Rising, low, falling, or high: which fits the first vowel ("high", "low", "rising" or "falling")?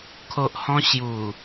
low